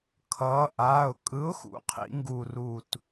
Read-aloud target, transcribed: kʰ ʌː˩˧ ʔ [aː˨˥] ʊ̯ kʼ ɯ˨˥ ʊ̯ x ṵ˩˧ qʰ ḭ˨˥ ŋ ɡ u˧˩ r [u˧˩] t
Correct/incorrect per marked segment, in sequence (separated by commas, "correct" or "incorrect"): incorrect, correct